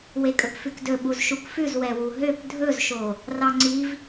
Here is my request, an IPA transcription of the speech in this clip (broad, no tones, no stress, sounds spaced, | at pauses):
w e kʼ ɵ p f ʉ k d ɵ ɓ u z ʃ u k f ʉ z w ɛ w u ɦ ø p dʱ ɵ z ʃ o | r ɑ ŋ͡ǀ i v